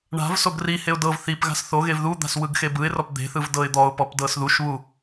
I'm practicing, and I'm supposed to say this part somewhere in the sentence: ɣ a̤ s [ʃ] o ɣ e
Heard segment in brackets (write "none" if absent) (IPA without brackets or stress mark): θ